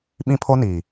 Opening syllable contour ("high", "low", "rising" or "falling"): high